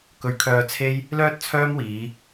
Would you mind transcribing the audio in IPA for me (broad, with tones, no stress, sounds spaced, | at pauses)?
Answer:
k ɵ˨ ɥ kʰ œː˧ t͡sʰ e˥ j | l œː˥ t̚ t͡sʰ œː˥ m w iː˨˧